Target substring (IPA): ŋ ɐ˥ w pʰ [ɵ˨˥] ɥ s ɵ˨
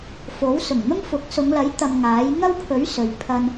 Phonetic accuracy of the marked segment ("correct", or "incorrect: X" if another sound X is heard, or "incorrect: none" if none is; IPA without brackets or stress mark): correct